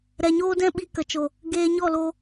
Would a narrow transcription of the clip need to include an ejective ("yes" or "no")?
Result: no